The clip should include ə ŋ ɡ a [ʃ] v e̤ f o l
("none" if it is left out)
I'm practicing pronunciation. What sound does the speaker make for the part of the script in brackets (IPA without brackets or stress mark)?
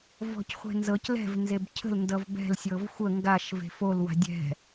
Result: ʃ